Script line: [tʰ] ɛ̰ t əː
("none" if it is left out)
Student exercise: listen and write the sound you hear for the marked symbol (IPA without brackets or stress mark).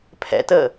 pʰ